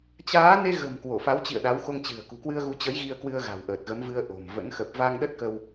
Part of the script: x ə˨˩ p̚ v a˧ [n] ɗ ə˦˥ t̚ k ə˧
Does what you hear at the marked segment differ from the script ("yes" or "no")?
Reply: yes